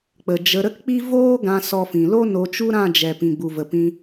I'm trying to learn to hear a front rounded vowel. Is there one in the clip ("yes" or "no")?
no